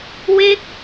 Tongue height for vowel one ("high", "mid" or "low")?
mid